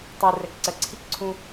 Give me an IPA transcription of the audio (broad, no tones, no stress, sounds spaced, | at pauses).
tˤ u r ɛ k ǀ ɜ ǀʰ i k ǀʰ ũ